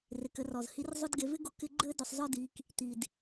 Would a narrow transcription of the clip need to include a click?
yes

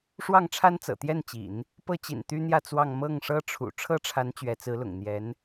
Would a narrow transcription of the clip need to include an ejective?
no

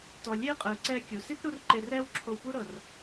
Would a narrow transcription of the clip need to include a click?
yes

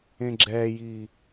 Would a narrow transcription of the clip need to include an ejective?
no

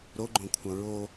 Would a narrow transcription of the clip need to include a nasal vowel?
yes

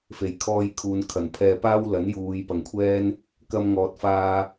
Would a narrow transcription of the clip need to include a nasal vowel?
no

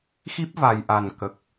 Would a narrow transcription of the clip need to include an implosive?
no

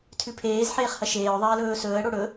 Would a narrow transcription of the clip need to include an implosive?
no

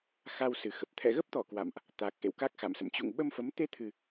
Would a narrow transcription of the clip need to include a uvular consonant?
no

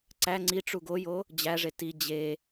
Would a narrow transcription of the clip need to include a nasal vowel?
no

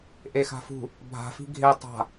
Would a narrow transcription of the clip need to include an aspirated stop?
no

